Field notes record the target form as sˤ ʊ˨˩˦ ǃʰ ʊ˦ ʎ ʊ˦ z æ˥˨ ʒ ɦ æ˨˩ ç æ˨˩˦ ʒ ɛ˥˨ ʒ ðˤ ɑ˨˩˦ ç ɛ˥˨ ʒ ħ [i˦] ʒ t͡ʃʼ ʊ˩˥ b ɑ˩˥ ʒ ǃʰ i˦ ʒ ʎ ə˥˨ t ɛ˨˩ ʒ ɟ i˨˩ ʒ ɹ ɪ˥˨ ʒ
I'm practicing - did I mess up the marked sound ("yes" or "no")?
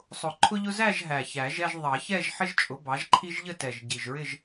yes